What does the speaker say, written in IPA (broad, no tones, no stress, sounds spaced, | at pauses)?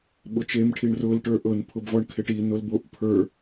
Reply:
ɓ ʊ t͡ʃ e m ʈʰ i ɳ r ʊ l ʈ ə˞ ʔ ɤ n pʰ ʊ b v ɔ ɳ kʰ e ʈ i n o l b o ʔ pʰ ə˞